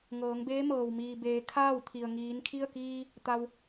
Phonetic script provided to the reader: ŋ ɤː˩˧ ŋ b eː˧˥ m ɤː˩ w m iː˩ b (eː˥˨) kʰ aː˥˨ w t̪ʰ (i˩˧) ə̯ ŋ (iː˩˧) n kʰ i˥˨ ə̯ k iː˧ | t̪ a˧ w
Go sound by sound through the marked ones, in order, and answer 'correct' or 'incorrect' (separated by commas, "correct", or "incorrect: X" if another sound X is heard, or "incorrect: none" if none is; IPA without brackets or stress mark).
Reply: incorrect: eː˩˧, incorrect: i˩, correct